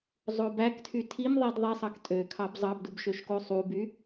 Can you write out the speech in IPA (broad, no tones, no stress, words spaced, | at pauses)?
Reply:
zˤobæktʰy tʰimðˤid ðˤesˤɑk tʼø kʰɑbzˤɑbdub ʃøʃkosˤuby